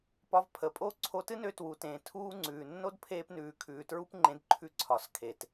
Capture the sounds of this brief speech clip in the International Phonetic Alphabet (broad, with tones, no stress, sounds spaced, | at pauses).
p ɒ˧ v pʰ ə˨ pʼ o˦ ǀʰ o˧ t ɨ˦ n ø˧ t w u˨ t ẽː˨ tʰ uː˦ ŋ͡ǀ ʉː˨ nː o˦ d pʰ eː˧ p n ʉː˨ kʰ ʉː˨ t ɹ u˦ p ŋ͡ǃ ẽ˧ d ǃʰ ʉ˧ ǀʰ ɒ˨ s kʰ e˨ t